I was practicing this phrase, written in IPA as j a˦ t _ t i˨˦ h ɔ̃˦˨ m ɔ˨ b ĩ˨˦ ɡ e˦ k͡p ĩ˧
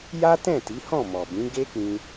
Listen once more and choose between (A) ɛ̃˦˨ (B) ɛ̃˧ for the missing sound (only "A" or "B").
A